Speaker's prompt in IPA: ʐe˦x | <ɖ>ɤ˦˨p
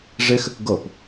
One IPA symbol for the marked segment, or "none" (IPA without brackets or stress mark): ɡ